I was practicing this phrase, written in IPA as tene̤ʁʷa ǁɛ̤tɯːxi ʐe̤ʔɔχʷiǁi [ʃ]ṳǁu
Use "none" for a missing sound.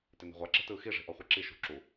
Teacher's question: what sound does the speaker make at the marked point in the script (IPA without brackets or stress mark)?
ʃ